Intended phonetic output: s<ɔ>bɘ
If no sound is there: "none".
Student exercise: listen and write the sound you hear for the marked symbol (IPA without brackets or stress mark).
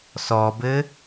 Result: ɔ